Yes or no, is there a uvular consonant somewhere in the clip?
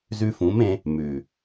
no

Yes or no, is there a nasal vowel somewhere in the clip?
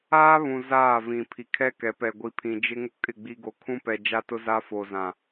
yes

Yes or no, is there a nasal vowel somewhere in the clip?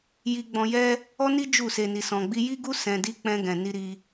yes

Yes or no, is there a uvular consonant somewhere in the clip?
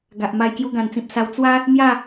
no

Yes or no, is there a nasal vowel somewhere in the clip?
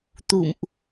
no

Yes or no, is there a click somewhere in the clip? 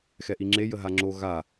yes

